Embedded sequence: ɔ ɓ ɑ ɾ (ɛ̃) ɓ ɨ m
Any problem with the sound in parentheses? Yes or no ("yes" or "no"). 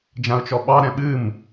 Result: no